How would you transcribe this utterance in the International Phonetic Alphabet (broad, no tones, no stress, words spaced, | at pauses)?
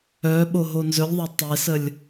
œ ɓoɦonzɵlʲðˤɐ tˤesəlʲ